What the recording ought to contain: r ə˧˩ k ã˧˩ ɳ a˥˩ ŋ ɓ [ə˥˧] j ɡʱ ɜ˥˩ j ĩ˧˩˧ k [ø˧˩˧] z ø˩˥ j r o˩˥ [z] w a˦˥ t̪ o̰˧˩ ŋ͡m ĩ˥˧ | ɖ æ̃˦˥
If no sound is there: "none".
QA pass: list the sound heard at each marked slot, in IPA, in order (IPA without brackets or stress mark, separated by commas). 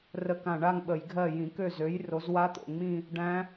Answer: ə˧˩˧, ø˥˩, z